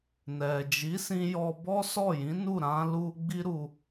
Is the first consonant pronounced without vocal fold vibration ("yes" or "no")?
no